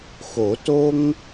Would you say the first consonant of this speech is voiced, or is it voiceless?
voiceless